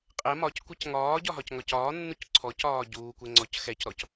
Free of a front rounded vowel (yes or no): yes